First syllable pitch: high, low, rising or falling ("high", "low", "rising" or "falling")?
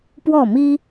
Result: falling